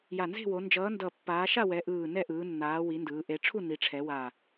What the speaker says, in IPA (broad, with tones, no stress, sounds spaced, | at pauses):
j a˨˩ n z e̤˦˨ w o˩˧ n d͡ʒ ʌː˩˧ n d ʌ˨˩ pː aː˩˧ ʃ a˦˨ w ɛ˩˧ ʔ ɯː˨˩ n ɛ˦˨ ʔ ɯː˩˧ nː aː˩˧ w i˩˧ n d ɯː˩˧ ʔ e˩˧ ʈ͡ʂʰ u˦˨ n i˩˧ ʈ͡ʂʰ ɛ˩˧ w a˨˩